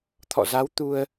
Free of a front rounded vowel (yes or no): yes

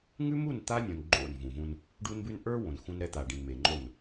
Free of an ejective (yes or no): yes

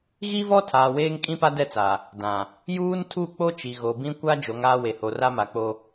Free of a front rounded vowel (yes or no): yes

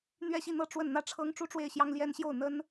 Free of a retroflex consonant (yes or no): no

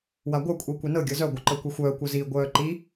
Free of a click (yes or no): no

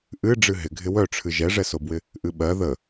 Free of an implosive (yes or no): no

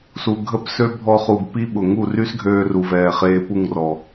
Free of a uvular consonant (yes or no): no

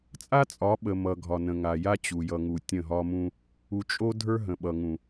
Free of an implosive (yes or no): no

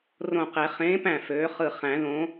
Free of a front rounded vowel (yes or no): no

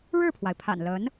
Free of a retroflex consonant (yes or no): no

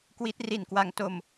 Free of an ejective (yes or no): yes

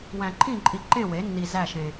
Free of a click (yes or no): no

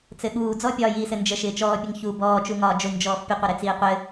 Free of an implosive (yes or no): no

